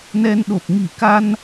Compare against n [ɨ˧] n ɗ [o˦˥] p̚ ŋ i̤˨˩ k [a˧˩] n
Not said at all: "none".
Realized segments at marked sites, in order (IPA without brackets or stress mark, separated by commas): ɛ˧, o˨˩, a˧